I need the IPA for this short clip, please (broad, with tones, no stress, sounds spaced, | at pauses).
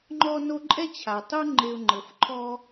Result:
ŋ͡ǃ ɔ˥ n o˥ ǃʼ ɛ˥ t͡ɕʰ a˩ tˤ u˥ ŋ͡ǃ e˧ ʊ̯ ŋ͡ǃ ɤ˩ f ǃʰ ɔ˥